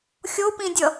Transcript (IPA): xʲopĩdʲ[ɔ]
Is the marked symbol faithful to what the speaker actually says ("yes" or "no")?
no